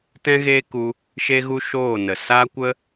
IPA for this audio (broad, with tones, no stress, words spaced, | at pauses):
tɛ̃˦ɣeː˦ku˧ | ʃe˦ɣu˦ʃoː˦˨nə˨ sa˦kʷə˦